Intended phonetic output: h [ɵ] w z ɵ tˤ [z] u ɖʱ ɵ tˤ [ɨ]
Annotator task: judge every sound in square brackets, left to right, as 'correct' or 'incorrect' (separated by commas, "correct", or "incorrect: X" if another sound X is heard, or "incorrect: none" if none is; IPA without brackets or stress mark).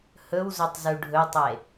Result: correct, correct, incorrect: e